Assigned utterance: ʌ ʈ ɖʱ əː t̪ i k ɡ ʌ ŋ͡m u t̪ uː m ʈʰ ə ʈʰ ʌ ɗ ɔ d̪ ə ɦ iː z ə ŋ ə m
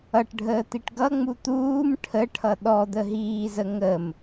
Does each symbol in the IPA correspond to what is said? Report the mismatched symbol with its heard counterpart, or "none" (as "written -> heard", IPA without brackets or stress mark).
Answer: k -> ʈ